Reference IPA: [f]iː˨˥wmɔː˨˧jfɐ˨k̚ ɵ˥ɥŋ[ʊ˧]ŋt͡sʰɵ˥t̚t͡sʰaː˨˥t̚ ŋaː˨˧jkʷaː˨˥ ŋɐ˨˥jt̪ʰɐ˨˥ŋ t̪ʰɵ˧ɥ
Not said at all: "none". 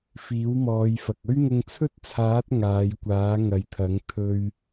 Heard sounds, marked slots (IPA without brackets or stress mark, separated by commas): f, ʊ˧